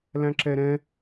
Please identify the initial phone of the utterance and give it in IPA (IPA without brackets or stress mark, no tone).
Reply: l